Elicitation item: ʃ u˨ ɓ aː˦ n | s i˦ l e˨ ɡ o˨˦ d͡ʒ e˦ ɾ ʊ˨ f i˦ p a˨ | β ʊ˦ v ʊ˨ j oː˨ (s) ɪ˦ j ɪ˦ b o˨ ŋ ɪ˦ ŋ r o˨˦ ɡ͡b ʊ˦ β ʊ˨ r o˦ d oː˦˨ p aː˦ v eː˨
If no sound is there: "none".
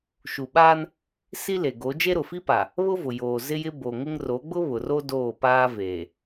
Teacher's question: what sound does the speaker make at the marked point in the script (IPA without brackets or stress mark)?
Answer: z